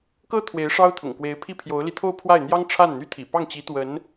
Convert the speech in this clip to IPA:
k ɤ˥ t̪ʰ w e˧˥ ɪ̯ ʂ ɑ˥ ʊ̯ t̪ʰ ʊ̰˨˩ ŋ k w e˧˥ ɪ̯ pʰ i˥˩ pʰ j o˧˥ ʊ̯ l i˧ t̪ʰ o˥˧ ʊ̯ pʰ w a˥˩ ɪ̯ n̪ j ɑ˥ ŋ ʈ͡ʂʰ a˥˩ n n̪ y˥ t̪ʰ ḭ˨˩ p ɑ˥˩ ŋ t͡ɕ i˧˥ t̪ w ə˧˥ n

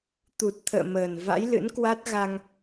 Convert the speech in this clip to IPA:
t̪ u˨˩ t̚ t̪ʰ ə̰ː˧˨ m əː˨˩ n v a̰˧˥ j l ɨ̰˧˥ n k w a˦˥ t̚ ɣ a˧ ŋ

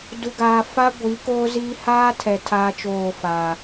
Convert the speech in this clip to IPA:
d u˨ ɡ aː˨ f a˦ ɡʷ i˨˦ k oː˦ z iː˦ h aː˦ tʰ ɛ˨ tʰ aː˦ t͡ʃ oː˦˨ f aː˨

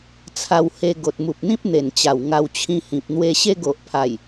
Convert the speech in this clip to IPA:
t͡sʰ a˧ w h e˧ ɡ o˨ t̚ m u˨ p̚ n̪ ĩ˦ p̚ n̪ e˨˩ n t͡ɕ a˨˩ w ŋ a˧ w t͡ɕʰ ĩ˧ h ĩ˨ p̚ n̪ w e˧ ɕ e˦ ɡ o˨ ʔ pʰ a˨˩ j

